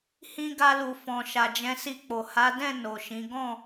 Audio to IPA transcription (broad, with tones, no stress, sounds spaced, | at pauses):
h ĩ˧ ɡ a˧ l u˨ f ɔ̃˨ ʃ a˨ d͡ʒ ɛ̃˧ s i˧ k͡p o˨ h a˨˦ d ɛ̃˦˨ n o˨ ʃ ĩ˨˦ ɡ ɔ̃˦˨